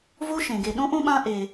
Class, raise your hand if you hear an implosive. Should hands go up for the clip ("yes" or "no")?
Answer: yes